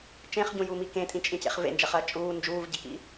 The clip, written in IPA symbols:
t͡ʃẽχɟũjumi kẽtʼĩt͡ʃʼĩcḛχ vḛnd͡ʒɐχɐː t͡ʃʼuː nd͡ʒuːvɟekḭ

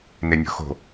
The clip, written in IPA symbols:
nenʲo̤xo̤

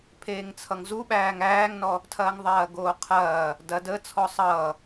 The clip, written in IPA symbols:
pʰeːŋt͡sʰʌŋzuɓæːŋ æːŋnɔ | tʰɐːŋðˤɐːɡoːqʰɐː | dɐ də t͡sʰɔsˤʌː

